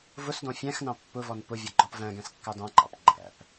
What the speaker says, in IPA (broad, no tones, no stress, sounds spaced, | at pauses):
v ʊ s d ɔ̃ fʲ æ̃ x n ɑ̃ pː ʊ v ɔ n p ʊ vʲ ʌ ɡ͡ǃ ɔ p v æ̃ ɡ æ̃ s kː ɑ d ɑ̃ ǃ ɑ̰ p ɡ͡ǃ æ̰ p